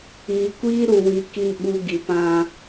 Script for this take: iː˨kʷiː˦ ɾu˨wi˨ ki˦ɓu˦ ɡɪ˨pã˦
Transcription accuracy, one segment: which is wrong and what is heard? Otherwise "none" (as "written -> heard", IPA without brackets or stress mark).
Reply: ɪ˨ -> i˨